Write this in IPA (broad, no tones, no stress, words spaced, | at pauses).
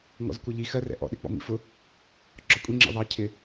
ŋɔ̰zkʷʌʎi xɜrɛ̰ ʔɔ̰ɗɪ k͡pɔ̰mḭfʊ | ɡ͡ǁɒkʷʼiŋ͡ǁḭ ðˤɑ cʰɪ